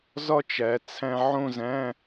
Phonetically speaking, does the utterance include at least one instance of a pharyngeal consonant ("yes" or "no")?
yes